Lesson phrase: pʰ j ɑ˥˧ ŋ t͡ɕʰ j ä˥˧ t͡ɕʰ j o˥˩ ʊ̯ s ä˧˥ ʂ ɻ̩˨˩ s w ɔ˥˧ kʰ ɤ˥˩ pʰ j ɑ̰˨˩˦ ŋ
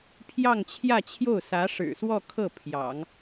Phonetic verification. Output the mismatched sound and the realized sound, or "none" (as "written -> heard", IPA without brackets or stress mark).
none